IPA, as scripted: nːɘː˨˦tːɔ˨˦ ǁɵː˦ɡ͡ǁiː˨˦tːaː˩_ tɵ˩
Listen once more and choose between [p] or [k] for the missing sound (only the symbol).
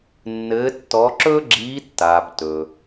p